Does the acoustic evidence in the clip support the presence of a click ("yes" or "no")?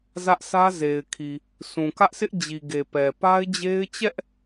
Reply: no